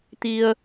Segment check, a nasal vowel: absent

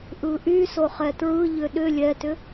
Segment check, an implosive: present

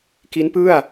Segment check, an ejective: absent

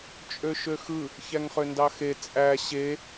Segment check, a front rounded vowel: present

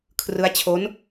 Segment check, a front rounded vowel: absent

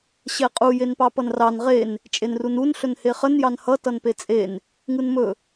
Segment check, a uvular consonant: present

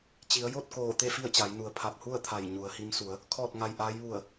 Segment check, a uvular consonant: absent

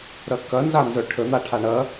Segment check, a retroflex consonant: present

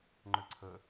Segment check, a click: present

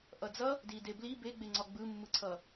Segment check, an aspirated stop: present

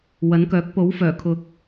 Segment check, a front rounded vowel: present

